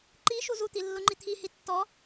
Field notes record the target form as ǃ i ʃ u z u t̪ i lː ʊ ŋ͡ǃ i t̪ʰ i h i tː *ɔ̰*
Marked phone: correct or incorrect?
incorrect